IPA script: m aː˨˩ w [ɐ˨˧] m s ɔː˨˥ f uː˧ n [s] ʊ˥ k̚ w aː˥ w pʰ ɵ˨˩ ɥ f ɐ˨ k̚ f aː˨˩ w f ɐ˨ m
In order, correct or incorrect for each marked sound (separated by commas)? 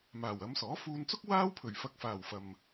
correct, incorrect